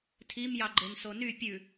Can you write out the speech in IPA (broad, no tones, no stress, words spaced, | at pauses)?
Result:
tʰimjɑɡ͡ǃen sony pʲʉ